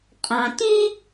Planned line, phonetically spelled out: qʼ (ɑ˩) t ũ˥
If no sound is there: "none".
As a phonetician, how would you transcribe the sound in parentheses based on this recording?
ɑ̃˩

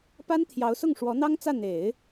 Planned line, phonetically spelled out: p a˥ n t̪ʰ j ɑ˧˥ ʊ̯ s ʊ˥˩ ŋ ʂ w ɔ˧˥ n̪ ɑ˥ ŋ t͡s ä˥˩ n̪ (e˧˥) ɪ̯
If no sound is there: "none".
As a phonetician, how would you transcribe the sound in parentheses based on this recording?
e˨˩˦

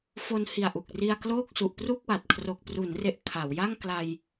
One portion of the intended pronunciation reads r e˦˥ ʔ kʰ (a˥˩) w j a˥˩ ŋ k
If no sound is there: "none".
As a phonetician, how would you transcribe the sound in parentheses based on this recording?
a˩˦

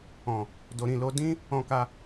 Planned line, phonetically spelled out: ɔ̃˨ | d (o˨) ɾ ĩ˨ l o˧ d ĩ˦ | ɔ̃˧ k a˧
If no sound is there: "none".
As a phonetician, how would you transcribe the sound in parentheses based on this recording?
o˨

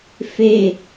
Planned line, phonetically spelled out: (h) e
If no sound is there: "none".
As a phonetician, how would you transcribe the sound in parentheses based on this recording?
f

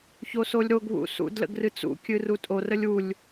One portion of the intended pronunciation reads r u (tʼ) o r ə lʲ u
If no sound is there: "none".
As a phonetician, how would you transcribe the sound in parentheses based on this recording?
tʼ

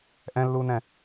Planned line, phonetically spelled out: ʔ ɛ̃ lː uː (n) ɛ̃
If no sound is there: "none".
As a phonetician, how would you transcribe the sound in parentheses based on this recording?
n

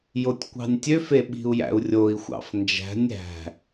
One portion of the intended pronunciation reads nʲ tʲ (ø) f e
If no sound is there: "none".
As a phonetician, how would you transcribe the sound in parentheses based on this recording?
ø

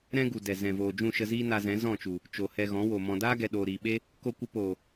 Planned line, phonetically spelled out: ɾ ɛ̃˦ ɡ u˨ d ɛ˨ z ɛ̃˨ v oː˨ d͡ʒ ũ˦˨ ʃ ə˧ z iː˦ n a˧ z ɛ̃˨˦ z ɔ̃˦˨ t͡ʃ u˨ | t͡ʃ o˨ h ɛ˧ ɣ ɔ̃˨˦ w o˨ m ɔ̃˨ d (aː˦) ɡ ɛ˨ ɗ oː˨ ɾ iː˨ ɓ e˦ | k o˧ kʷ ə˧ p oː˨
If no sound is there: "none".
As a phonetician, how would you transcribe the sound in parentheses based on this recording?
aː˦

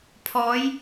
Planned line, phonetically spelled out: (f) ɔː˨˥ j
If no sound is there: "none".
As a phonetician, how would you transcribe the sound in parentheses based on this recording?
pʰ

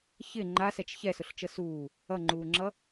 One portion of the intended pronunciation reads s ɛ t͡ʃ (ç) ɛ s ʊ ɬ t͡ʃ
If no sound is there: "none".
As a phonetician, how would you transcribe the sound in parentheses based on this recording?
ç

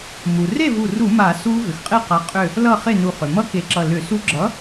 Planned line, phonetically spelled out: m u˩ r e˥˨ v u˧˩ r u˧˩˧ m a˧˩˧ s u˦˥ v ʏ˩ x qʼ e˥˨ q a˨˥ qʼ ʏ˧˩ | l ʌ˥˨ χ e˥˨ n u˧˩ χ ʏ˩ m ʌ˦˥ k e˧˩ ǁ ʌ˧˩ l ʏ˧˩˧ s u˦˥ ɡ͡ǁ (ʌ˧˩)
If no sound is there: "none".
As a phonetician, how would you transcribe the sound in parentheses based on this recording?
ʌ˨˥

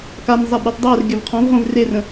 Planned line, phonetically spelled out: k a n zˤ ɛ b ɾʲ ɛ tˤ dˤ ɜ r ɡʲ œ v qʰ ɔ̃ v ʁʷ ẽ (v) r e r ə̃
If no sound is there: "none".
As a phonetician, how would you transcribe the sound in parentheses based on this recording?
v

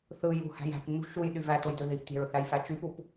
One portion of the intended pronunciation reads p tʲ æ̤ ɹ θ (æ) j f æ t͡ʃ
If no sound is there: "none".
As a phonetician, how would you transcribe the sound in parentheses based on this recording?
æ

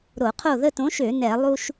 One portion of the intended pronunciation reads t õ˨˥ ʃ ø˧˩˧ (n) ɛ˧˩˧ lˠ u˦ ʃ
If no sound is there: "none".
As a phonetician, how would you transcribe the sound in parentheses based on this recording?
n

